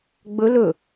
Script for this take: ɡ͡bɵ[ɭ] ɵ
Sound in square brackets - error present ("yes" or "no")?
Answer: yes